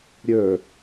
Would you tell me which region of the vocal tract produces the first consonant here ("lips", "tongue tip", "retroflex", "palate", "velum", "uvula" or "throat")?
tongue tip